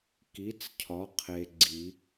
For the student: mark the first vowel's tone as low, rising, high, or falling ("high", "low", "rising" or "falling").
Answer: rising